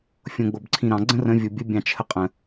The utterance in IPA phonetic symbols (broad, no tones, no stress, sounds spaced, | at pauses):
fʲ õ ɡ͡b o b ǀʰ ĩ ɾ ɑ̃ ɡ͡ǀ ə̃ r ə̃ vʲ o bʲ ə bʲ ɑ̃ t͡ʃʰ ə qʼ ə̃